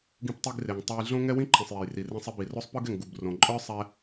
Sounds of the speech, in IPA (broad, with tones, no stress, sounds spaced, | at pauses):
ɡ ĩ˧ p tˤ i˧ ɡ r e˩ ŋ tˤ ɛ˧ j ɮ õ˥ ŋ ɛ˥ w ĩ˥ ǃʰ ĩ˩ sˤ j ɛ˩ j r i˩ r ĩ˧ sˤ i˧ b i˩ r o˥ sˤ p ɯ˥ ɡ ɛ˩ ŋ ɡ u˩ b r õ˩ ǃʼ ə˞˥ sˤ ɛ˧